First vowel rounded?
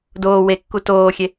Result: yes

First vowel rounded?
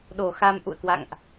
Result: yes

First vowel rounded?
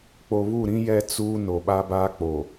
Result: yes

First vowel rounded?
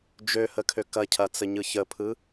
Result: yes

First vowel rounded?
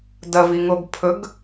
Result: no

